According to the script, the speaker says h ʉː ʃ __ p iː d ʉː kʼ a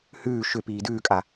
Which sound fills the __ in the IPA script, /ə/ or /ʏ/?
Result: ʏ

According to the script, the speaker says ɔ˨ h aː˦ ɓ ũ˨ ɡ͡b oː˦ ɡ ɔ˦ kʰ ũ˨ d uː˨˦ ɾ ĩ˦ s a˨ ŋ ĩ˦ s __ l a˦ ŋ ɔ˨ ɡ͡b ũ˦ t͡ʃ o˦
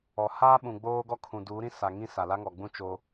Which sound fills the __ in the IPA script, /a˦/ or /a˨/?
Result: a˨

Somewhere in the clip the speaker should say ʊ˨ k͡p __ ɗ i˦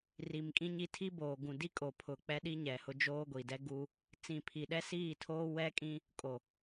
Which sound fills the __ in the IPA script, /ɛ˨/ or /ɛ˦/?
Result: ɛ˦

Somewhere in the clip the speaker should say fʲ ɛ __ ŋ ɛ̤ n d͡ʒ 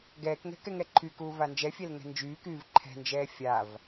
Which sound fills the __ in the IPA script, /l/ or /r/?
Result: l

